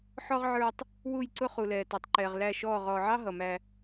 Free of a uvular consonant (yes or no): no